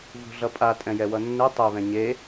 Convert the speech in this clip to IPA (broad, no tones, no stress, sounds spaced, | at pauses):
v ṳ ɮ ʌ pʼ a tʼ ɛ̃ j ɛ w ʌ nː ɯ tˤ e β ɛ̃ ɲ e